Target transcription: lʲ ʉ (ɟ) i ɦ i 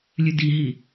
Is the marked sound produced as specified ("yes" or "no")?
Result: no